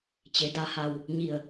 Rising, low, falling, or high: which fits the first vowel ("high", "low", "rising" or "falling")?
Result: low